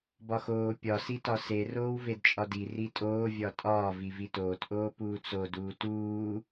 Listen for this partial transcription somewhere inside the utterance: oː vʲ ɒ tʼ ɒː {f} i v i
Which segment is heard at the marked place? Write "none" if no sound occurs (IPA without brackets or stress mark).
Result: v